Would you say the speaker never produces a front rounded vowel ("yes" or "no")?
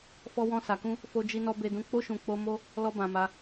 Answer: yes